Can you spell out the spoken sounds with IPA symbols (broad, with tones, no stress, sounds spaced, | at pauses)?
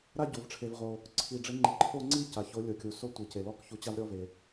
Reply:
ɾ a˥˧ ɟ o˩ v ʈ͡ʂʰ e˩ v ʁ o˩ | ǀʰ i˩ ɖ͡ʐ ɪ˨˥ ŋ͡ǃ i˩ ǃʰ o˥˧ ŋ͡ǀ i˥˧ c a˩ ç o˨˥ lʲ o˩ kʲ u˩ s o˥˧ tʷ i˩ c e˩ l ɔ˥˧ k ç u˨˥ t͡ɕ a˥˧ v ɾʲ ɔ˥˧ v e˩